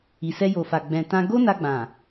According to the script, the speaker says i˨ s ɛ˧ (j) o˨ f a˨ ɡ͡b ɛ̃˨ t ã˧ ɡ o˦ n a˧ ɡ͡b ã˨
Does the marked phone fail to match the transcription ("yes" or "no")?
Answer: no